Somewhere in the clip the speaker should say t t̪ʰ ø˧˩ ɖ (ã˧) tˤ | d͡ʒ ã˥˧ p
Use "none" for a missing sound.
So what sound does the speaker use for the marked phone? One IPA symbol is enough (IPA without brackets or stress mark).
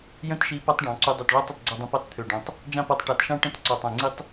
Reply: ã˧